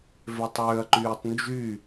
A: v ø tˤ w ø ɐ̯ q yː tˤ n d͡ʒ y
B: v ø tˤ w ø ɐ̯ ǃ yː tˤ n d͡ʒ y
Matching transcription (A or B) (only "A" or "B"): B